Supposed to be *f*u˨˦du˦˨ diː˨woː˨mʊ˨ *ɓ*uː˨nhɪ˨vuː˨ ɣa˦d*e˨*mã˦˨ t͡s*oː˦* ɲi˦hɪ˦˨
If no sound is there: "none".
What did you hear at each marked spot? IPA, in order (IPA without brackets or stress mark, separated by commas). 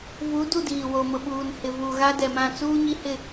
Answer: v, ɓ, ɛ˨, uː˦